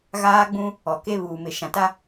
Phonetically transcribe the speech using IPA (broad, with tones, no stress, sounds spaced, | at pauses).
ɣ aː˦ ɡ͡b ũ˦ | ɔ˨ k e˦ β uː˨ m ɪ˨ ʃ ã˨ t a˦